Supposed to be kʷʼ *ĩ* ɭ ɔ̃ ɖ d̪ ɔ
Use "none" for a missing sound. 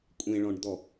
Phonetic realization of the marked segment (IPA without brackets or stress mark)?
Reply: ẽ